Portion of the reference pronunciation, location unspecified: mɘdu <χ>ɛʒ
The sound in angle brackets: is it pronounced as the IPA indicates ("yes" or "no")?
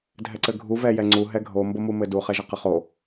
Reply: yes